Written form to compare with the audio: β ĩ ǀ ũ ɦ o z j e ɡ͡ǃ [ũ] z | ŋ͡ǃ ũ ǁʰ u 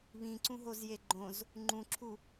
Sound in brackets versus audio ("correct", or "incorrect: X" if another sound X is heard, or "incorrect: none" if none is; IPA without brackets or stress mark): incorrect: õ